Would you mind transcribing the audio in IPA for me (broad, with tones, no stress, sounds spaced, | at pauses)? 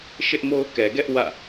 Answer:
ʃ ɪ˦ ʔ m o˦ ʊ̯ k ɛ˨ ɡ ɛ˦ ʔ w ä̰˦˨